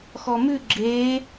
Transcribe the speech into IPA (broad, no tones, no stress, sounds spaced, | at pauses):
x ɔ m ʉ ɡ͡ǁ eː